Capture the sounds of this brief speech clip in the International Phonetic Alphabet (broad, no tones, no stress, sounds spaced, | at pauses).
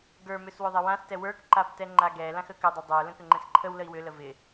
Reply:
ɡ ə˞ m ʏ s w ʏ ðˤ ɪ w ã s t ɛ w ə˞ k ǃ a b t ɛ ŋ͡ǃ a ɡ ɛ l ã x ə k ʏ dˤ ʏ dˤ ə˞ l ə̃ k ʏ ŋ͡ǃ ɛ̃ s ǃʰ ə w l ə i̯ w ʏ l ə v ɪ